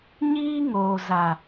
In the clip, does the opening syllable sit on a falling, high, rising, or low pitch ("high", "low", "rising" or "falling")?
high